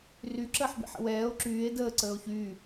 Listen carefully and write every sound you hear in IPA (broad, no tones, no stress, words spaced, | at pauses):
ry ǁəːħbḭħə̰wɛːo̯ ǁyːe̯ dəː ǀəːo̯çyː